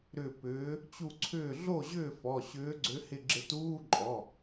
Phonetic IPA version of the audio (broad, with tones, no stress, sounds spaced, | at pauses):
ɾ ʏ˧˩ p ʏː˨˦ | t͡ɕ u˧˩ ǀʰ ʏː˧˩ ɮ o˥˩ ʑ ʏː˥˩ f ɔ˩˧˩ ɕ ʏː˨˦ ɡ͡ǀ ʏ˨˦ h ɪ˧˩ ɡ͡ǁ ɪ˧˩ t uː˧˥˧ ǃʼ ɔ˩˧˩